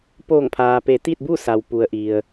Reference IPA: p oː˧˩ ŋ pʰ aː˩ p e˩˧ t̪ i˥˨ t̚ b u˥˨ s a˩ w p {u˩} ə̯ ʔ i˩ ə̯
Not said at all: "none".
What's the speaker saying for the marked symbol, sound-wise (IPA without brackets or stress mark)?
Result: u˩